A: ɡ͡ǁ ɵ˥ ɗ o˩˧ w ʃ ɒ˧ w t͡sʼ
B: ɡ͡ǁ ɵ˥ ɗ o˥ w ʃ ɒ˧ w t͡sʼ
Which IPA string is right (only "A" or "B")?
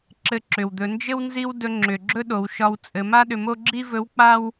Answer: A